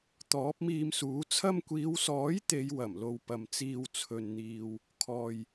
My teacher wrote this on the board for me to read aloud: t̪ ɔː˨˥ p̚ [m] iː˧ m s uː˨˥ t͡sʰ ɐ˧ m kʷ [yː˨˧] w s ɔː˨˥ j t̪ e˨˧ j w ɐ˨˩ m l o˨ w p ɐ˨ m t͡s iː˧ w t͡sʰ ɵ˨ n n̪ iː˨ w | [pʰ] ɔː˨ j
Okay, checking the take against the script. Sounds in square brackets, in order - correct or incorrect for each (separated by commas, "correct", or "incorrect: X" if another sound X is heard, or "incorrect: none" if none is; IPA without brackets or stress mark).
correct, incorrect: iː˨˧, incorrect: kʰ